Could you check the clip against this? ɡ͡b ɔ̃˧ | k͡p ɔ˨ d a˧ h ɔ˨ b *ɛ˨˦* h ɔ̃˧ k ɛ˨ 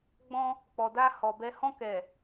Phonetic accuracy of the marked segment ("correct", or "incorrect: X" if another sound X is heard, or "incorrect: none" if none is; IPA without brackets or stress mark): incorrect: ɛ˧